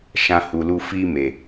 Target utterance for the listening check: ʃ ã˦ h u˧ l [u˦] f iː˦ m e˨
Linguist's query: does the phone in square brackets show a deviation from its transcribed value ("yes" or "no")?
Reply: no